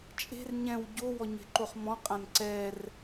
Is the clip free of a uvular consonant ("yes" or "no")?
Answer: no